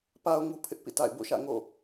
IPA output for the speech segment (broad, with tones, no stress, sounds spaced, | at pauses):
p a˨ ʊ̯ ŋ u˦ pʰ ɪ˦ ʔ p ḭ˦˨ t a̰˦˨ ɪ̯ b o̰˦˨ ʃ ä̰˦˨ ŋ o̰˦˨